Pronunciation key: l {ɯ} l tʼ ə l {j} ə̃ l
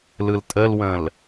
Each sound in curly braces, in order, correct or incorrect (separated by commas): correct, incorrect